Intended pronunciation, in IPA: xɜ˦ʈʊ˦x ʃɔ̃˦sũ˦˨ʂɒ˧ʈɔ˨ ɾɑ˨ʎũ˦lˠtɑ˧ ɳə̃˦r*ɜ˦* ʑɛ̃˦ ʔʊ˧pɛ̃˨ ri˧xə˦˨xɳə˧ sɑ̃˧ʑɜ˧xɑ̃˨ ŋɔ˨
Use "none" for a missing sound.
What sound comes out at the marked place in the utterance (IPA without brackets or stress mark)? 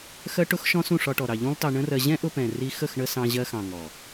ɜ˧